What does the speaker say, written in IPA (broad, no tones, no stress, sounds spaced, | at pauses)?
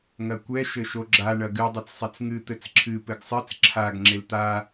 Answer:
ŋ ɐ kʷ ɛ ʃ ɘ ʃ o ɡ͡ǁ a ɳ ɐ ɡ ɨ dˤ ɛ t͡s sˤ e t͡s ŋ ɨ t̪ ɘ t͡s ǁʰ ɨ p ɘ ɡ sˤ ɨ t͡s ǁʰ a ɡ ŋ͡ǁ e l t̪ a